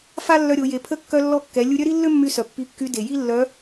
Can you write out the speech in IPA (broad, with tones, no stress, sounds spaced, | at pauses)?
f a˥ lː œ˧ ɾʲ o˩˧ j e˩˧ pʰ ə˧˥ kː œ˧ lː ɔ˧ kː ɛ˩˧ lʲ u˧ ɾʲ œ˥ ɾ i˥ lː ø˥ mː y˧ s œ˩ pː i˧ kː y˧˥ d e˩ j i˥ lː œ˧˥